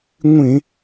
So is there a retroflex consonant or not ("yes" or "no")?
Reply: no